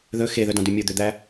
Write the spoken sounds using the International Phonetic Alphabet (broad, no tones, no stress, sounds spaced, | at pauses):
ð ɵ x e ð œ d ɑ̃ d ʉ mʲ o d̪ ø d̪ æ